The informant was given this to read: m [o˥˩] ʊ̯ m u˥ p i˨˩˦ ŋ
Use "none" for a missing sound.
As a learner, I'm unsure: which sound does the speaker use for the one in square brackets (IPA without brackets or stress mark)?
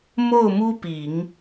o˥˩